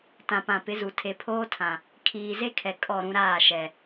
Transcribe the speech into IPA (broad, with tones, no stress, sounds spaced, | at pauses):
t ã˨ p ã˨ p ɪ˨˦ z u˨ tʰ e˨ pʰ oː˦ tʰ ã˨ | kʰ iː˨ z e˦ kʰ ɛ˨ kʼ ɔ˦˨ ɾ ũ˦ ɾ aː˦˨ ʃ ɛ˨